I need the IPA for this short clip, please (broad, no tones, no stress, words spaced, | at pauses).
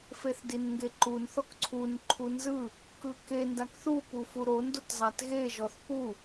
feθdinŋɡeǃun θɔkǀʰun ǃʰunzɯ | kɯke ndakθu pufuɾon dotzˤatɣe ʒɔθpu